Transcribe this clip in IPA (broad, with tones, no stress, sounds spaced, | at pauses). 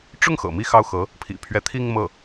ʈ͡ʂ ʊ˥˩ ŋ x ɤ̰˨˩ m i˥˧ x ɑ˥˩ ʊ̯ x ɤ˧˥ | pʰ ḭ˨˩ pʰ ɥ ɛ˧˥ t̪ʰ i˥˧ ŋ m ɤ˥˩